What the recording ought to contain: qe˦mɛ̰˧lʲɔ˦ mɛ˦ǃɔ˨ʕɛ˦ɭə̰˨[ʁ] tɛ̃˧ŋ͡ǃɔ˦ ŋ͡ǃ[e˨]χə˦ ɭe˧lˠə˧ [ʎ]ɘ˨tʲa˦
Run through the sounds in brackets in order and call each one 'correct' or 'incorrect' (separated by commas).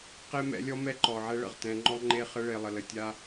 correct, incorrect, incorrect